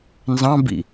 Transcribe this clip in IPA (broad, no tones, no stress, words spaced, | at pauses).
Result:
nzɑ̃bḭ